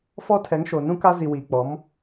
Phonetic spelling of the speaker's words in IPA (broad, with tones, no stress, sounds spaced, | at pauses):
f ɔ˦ tʰ ɛ˨˦ ŋ ʃ o˨ n ũ˦ k a˦ z i˨ w iː˨ k͡p ɔ˨˦ m